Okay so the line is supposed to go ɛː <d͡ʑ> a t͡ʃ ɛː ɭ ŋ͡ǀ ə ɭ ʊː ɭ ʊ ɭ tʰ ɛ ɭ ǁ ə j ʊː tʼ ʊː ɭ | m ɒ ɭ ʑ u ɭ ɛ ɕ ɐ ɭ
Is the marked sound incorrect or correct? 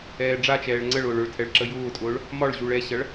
incorrect: ɖ͡ʐ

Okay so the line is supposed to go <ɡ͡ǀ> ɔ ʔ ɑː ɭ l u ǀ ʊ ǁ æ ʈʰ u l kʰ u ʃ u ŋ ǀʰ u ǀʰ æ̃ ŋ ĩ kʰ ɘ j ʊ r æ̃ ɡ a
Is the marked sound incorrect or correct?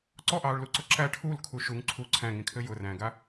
incorrect: ǀ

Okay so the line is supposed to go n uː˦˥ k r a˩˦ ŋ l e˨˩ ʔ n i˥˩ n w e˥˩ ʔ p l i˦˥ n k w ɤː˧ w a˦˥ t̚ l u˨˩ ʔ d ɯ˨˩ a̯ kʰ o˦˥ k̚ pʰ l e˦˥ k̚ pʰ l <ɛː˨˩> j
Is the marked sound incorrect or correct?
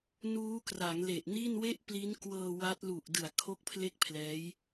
incorrect: ɛː˦˥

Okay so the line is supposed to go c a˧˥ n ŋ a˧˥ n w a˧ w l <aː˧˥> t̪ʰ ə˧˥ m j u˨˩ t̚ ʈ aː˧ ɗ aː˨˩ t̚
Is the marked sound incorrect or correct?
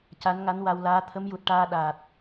correct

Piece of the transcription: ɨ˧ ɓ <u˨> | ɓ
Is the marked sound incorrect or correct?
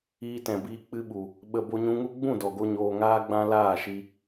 correct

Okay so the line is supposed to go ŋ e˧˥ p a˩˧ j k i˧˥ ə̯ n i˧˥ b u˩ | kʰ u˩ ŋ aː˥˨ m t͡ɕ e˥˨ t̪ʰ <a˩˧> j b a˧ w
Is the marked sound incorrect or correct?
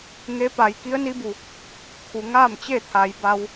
correct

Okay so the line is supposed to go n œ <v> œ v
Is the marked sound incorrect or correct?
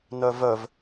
correct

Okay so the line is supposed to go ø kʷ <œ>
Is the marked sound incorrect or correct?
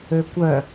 correct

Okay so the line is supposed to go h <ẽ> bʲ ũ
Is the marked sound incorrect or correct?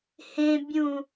correct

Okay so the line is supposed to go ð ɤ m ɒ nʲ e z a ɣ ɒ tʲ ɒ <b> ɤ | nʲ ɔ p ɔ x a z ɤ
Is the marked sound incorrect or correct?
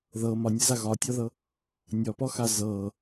incorrect: ð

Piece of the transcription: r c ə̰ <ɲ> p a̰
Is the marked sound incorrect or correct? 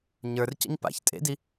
correct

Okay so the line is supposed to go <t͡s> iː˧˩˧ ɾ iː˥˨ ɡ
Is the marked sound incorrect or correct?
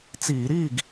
correct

